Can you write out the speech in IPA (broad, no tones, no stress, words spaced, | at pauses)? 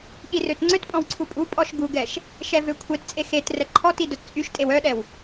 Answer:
ɠirøtŋ͡ǀøtpʼɔ̃w ǀʰupʼupʼɔʃ ɡuɡɛʃ | ʃɛvøkʷʰett͡sʼe xet rɛǃʰɔti dœtt͡sʼyʃtʼew œɗɛw